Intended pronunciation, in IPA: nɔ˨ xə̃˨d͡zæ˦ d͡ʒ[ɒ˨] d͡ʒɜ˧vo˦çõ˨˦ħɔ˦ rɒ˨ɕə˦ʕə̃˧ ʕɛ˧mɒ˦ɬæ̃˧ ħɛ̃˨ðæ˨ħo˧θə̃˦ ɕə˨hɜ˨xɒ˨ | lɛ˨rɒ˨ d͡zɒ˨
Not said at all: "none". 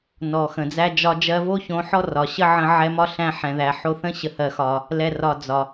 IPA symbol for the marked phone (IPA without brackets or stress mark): ɒ˦